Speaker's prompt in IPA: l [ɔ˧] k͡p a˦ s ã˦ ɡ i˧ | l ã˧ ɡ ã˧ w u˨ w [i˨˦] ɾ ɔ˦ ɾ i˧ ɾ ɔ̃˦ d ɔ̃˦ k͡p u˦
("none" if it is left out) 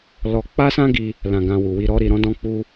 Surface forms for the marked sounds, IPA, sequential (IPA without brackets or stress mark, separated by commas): ɔ˧, i˧